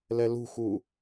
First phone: l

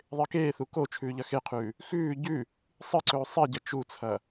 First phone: ðˤ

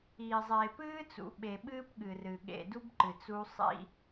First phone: iː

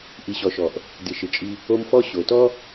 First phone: ʔ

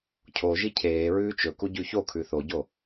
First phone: cʰ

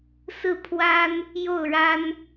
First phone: s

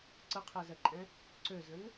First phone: ǀ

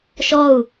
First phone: ʃ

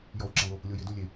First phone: j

